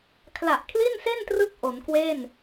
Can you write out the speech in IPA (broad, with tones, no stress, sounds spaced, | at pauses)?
kʰ l a˨˩ ʔ kʰ l i˥˩ n s e˥˩ n t r ɯ˦˥ k̚ ʔ o˩˦ n k w e˥˩ n